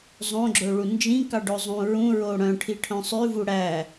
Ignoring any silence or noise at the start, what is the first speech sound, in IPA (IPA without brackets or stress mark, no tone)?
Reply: zˤ